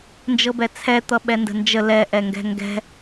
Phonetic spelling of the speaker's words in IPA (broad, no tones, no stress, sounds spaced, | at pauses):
n d͡ʒ ɤ b ɛ t͡sʰ ɛ t̪ ʌ ɓ ɛ n d ə̤ n d͡ʒ ə l ɛ ʔ ɛ ŋ ɡ ɛ̤ ŋ ɡ ɛ̤